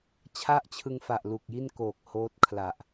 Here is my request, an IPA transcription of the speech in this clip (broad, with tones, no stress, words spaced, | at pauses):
t͡ɕʰa˥˩ʔt͡ɕʰɯ˧ŋfa˨˩ʔ lu˨˩k̚ji˥˩nkoː˨˩k̚ hoː˦˥t̚ kʰla˨˩ʔ